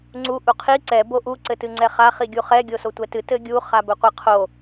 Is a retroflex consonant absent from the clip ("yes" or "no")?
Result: yes